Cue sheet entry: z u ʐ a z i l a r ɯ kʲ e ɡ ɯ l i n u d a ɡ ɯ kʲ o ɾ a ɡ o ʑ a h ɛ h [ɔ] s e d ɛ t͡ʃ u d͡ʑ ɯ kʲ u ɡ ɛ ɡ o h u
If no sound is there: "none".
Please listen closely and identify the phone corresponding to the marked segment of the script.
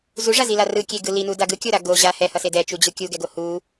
ʌ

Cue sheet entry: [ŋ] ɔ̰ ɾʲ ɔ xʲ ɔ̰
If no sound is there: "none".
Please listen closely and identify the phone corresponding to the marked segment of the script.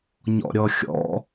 ɲ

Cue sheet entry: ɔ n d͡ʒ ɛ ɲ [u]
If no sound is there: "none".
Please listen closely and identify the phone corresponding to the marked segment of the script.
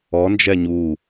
u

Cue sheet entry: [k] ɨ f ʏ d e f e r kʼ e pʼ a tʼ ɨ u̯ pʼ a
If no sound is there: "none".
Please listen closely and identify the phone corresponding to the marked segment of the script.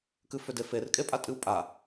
k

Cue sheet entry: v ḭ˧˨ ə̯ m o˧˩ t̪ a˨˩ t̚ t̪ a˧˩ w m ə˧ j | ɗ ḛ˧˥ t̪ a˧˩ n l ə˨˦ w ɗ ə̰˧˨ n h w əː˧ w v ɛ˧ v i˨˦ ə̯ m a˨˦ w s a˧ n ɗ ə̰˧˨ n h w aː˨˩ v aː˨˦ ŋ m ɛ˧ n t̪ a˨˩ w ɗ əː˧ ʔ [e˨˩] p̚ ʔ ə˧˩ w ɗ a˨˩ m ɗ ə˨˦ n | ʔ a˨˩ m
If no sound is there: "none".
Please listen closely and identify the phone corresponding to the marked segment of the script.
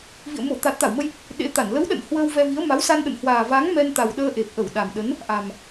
e˨˩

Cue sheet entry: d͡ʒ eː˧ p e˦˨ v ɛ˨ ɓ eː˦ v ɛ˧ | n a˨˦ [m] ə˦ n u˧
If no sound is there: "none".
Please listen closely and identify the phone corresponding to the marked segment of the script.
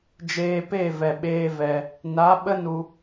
ɓ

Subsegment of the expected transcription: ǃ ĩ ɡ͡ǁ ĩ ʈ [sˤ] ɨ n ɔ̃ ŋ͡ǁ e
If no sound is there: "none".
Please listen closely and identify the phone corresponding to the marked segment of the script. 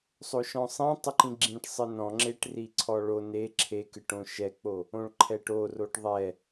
sˤ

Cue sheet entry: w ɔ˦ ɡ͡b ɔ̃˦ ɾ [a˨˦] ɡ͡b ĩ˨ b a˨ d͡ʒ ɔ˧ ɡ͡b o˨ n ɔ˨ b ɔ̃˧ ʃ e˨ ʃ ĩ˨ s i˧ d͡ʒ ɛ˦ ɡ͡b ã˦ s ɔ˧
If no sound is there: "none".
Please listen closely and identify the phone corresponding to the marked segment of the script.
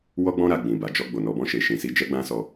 a˦˨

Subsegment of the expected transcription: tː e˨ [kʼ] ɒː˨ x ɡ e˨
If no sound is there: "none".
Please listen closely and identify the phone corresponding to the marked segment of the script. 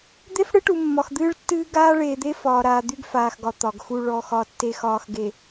x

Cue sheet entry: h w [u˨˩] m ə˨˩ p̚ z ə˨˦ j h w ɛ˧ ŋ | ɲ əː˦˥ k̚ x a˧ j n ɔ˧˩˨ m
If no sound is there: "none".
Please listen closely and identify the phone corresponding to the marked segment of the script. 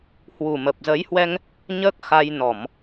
u˨˩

